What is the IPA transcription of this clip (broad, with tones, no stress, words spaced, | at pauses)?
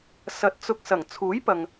sɐ˨t̚ t͡sʊ˧k̚ sɐ˨˩ŋ t͡sʰuː˨˥jpɐ˨ŋ